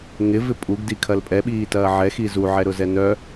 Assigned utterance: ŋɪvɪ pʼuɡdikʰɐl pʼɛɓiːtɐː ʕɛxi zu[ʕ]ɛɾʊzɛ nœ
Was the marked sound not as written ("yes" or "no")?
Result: no